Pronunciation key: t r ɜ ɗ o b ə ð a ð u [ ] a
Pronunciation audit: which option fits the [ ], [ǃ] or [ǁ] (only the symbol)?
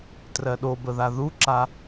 ǁ